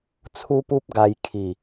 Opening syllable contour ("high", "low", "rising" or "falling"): high